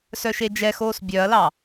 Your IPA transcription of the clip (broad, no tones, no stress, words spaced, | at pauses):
sœʃed͡ʒɛxoːs bʲœɐ̯lɑ